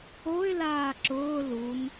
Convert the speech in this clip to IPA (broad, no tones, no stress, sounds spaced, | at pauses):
o ɪ̯ l aː ǁ ʊː l u n